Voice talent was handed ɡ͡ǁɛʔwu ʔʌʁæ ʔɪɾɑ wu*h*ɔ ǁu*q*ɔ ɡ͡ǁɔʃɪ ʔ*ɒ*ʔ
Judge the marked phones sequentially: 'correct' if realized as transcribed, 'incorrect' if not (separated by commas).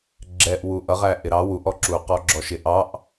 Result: incorrect, correct, incorrect